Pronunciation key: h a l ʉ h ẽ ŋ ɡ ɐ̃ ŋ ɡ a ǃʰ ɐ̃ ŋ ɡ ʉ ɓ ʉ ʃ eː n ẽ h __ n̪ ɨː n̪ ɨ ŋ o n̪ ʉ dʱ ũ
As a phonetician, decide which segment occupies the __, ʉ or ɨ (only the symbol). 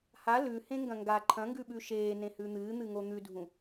ʉ